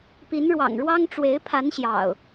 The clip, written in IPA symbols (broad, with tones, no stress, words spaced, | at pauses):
pi˨˦nɻwɑ̰˨˩ŋɻwɑ˦ŋ ʈ͡ʂwe˨˦ɪ̯pʰa˨˦n ɕjɑ̰˨˩ʊ̯